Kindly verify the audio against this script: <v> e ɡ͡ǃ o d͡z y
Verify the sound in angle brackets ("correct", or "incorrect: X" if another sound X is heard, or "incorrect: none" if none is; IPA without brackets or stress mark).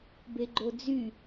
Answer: incorrect: b